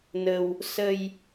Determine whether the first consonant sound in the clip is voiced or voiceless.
voiced